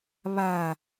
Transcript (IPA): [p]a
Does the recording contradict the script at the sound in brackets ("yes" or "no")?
yes